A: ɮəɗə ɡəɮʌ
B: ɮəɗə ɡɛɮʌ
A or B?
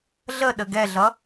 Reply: B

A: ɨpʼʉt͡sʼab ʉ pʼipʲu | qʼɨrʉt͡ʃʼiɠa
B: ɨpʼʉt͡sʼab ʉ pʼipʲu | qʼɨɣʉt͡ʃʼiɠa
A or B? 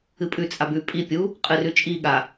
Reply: A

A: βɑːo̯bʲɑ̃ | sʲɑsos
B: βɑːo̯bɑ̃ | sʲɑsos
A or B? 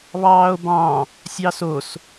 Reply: B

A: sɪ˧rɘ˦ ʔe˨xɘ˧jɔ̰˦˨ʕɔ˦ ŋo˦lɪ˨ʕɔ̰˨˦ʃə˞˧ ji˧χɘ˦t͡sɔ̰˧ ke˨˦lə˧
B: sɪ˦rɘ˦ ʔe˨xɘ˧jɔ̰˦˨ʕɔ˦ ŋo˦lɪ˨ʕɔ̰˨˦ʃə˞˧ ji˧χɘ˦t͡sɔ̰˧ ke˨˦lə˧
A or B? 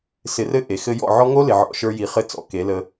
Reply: A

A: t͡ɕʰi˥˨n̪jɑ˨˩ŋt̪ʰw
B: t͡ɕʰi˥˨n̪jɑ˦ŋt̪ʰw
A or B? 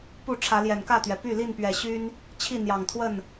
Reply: A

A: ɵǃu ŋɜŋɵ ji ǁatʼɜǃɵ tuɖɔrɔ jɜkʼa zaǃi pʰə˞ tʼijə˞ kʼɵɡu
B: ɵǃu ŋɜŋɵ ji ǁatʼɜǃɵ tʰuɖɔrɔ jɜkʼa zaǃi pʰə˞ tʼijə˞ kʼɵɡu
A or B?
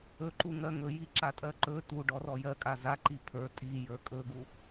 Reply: A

